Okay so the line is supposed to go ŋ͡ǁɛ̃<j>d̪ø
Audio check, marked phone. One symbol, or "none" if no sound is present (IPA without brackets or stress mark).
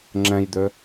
j